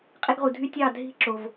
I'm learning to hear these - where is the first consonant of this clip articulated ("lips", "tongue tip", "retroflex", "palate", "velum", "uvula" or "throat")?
uvula